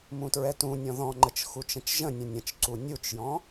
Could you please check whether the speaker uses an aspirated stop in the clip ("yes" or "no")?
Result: no